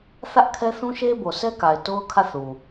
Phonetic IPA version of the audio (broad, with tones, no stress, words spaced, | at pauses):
θä˦ʔkʰɛ˦θũ˦ ʃe˦bo˨sɛ˦ka˨ɪ̯ to˦ʊ̯kʰä˦˨θu˨